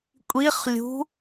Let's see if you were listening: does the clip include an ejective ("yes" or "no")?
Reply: yes